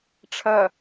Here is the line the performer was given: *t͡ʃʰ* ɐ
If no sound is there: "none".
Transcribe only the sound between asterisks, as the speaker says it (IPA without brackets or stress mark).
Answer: ʈ͡ʂʰ